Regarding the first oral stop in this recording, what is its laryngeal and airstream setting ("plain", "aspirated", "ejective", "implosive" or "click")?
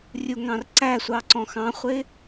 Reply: click